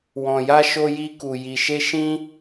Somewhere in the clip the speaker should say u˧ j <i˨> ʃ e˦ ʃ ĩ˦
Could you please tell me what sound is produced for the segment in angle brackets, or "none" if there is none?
i˧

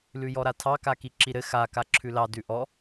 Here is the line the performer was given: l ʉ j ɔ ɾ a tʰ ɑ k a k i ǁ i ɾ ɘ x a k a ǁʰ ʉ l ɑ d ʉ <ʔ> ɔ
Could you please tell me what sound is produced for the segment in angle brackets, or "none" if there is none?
ʔ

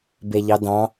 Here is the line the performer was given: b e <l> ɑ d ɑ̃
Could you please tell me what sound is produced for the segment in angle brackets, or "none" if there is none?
ʎ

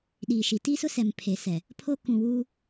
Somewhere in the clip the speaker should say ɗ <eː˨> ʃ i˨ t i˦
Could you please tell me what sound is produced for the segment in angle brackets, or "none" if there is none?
iː˨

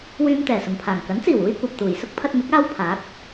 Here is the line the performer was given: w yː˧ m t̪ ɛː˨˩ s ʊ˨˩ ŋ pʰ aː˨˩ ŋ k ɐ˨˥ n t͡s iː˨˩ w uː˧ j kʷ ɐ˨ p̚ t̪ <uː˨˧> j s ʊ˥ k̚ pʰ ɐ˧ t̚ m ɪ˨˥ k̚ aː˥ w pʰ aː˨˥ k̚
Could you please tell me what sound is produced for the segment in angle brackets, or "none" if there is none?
uː˨˩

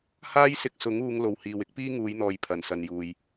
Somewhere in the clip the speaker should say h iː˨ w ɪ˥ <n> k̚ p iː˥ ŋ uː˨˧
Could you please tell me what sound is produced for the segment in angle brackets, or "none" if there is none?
none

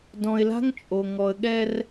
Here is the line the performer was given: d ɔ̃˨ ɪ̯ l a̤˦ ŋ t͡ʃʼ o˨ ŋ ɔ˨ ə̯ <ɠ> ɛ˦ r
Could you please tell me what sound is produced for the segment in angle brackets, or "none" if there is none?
ɠ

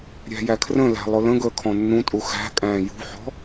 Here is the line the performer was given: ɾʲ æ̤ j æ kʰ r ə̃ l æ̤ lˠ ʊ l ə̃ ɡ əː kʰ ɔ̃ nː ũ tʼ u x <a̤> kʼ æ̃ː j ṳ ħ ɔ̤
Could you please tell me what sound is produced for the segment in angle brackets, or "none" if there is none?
æ̤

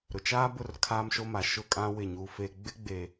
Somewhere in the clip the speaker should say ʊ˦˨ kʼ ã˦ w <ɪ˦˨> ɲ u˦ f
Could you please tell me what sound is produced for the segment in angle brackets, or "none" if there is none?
ɪ˦˨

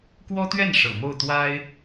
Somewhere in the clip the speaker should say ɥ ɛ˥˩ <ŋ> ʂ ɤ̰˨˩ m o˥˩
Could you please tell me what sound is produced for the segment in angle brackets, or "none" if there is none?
n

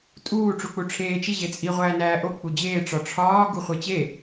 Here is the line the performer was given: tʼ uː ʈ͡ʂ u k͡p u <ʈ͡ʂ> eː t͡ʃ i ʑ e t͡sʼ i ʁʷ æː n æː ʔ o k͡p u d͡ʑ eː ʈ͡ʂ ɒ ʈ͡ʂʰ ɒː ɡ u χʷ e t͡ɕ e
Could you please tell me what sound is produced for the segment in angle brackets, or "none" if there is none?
ʈ͡ʂʰ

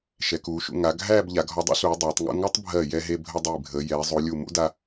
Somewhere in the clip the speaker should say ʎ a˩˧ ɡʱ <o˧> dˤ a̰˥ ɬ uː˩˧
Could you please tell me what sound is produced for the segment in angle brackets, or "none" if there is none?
ɔ˧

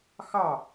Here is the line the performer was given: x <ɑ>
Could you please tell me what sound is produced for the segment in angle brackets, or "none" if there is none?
ɑ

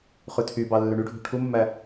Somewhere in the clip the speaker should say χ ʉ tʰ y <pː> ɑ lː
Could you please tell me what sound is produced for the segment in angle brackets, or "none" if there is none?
b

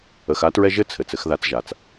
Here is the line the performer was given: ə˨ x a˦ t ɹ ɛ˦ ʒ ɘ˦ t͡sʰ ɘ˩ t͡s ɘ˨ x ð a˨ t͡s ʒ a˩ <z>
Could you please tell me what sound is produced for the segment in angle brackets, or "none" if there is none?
t͡s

